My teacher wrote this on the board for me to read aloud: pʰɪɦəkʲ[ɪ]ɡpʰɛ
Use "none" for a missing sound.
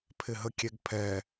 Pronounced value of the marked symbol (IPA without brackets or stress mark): ɛ